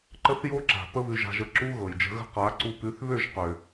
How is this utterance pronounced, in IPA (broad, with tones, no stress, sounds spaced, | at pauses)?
ǃ ə˦ θ j o˦ ǁ a̤˨ p ə˦ β ʉ˧ ʒ a̤˧ ʒ ə˧ ǁ u˦ ɣ ɤ˨ j d͡ʒ ə̤˧ ɣ ə̤˦ q a˨˦ ǀ u˧ p ʉ˨˦ θ β ø˦˨ ʒ q ø˨